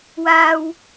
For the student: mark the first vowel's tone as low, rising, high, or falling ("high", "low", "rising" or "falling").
high